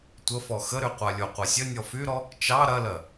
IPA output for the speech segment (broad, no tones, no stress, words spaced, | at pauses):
tʷəfɔ xəɾyqʷa lʲoqʷɐsʲə nʲɔfyɾɔ | t͡ʃɑ ɾɐlɜ